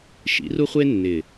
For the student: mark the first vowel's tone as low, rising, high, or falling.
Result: rising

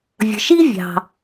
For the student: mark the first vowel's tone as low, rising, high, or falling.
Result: low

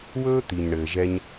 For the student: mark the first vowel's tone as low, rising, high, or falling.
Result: high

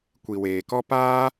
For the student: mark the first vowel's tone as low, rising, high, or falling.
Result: low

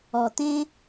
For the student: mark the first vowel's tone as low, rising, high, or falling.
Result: low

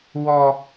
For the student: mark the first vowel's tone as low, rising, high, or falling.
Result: high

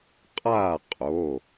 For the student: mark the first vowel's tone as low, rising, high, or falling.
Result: falling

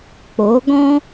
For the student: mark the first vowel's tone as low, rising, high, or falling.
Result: rising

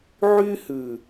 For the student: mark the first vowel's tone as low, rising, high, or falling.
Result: high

